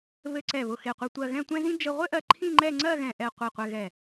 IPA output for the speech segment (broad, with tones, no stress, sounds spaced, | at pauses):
β ɘ˧ ǀ ɛ˧˩ β ʊ˧˩ x e˧˩ qʷ ɛ˧ tʷ ɜ˧ ɣ ɛ̃˥˧ tʷ ɛ̃˥ z ĩ˥ d͡ʒ ɘ˧ ʁʷ ɘ˥ ʔ ɜ˧ ǃʰ ĩ˥˧ ŋ͡ǃ ɛ˥˧ ŋ͡ǀ ɜ˥˧ ɣ ɛ̃˧˩ ʔ ɛ˧˩ qʷ i˧˩ qʷ ɛ˧ ɣ ɛ˧˩